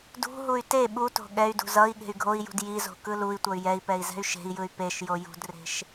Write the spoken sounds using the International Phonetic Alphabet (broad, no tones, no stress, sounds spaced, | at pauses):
d ṳ ɦ u y̯ t e ɓ u t o̤ ɠ ɛ y̯ d ṳ z ʌ i̯ ɠ e̤ y̯ ɡʱ o i̯ j ṳ d j i z o̤ k ɯ l u i̯ tʷ ʌ y̯ j ɛ i̯ p ɛ i̯ z ɛ̤ y̯ ʃ e̤ i̯ j ɯ y̯ p e ʃ j o j ṳ d r e̤ ʃ